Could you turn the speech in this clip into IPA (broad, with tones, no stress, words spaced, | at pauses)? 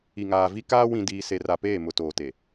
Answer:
i˨ŋaː˨vi˦kaː˦ wĩ˨diː˨se˨r a˨peː˦˨mʊ˨ toː˨te˨